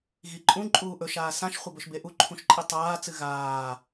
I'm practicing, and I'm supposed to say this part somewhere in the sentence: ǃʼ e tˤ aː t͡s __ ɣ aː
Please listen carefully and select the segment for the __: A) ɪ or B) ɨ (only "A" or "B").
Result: B